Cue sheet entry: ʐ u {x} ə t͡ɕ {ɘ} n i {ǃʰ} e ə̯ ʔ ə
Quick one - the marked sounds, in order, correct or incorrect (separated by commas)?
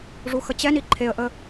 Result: correct, incorrect, correct